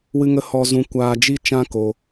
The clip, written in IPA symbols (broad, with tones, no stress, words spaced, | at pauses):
wɨ˧ŋə˧ hɔ˧zũ˧kʷaː˧ d͡ʒi˦t͡ʃã˦ko˧